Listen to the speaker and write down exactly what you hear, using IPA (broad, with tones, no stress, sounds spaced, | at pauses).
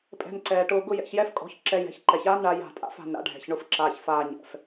pʼ ɛ̤˧ n ǀ ɛː˨ ʈ ʊː˧ ɡ ʊ˦ j ɛ̰˧ ç j ɛ˦ f kʼ ɔ̤˨˦ ç ǁ ɛ˧ j ɛ̤˨˦ ç ǃ ɛ˨ ç aː˦ n ɳ a˧ j a̤˦˨ tʼ a̰˦ f a̤˨ n ɾ a̰˧ ɖʱ ɛ̤˨ ç ɳ ʊ˧ f ǁ aː˨ ç f aː˧ ɲ ɛ̰˨ f